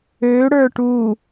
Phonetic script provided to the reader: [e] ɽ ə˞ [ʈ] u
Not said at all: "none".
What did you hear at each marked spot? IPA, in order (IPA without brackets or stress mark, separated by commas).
ø, ʈ